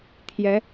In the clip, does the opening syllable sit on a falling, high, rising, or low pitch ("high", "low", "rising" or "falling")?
rising